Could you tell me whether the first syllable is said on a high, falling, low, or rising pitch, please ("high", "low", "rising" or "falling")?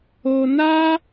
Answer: low